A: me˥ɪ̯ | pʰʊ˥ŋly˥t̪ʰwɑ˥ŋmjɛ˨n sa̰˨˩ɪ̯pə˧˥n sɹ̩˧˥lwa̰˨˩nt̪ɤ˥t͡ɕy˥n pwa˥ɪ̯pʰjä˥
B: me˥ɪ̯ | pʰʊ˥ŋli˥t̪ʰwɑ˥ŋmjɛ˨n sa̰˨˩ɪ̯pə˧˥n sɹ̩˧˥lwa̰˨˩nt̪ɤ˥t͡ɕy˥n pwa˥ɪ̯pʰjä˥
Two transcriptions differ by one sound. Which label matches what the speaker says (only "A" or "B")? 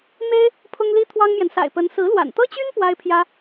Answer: B